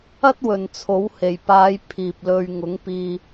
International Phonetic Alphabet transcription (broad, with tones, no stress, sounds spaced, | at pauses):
ɐ˥ t̚ w ɵ˨ n t͡sʰ o˨˥ w h e˨˩ j p aː˨˧ j pʰ iː˨ p̚ l ɵ˧ ɥ ŋ ʊ˨˥ ŋ p iː˧